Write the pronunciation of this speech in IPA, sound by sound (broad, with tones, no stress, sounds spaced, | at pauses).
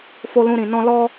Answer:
f o˦ l ũ˦ ɾ ĩ˧ n ɔ̃˦ l ɔ˦